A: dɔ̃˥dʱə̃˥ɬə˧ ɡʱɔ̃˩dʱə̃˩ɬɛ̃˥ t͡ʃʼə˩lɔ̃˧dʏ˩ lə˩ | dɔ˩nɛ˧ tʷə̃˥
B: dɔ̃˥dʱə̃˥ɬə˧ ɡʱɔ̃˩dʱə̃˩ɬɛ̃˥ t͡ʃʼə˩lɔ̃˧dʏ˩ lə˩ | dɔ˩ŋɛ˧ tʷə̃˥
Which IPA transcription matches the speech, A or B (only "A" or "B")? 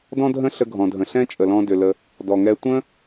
B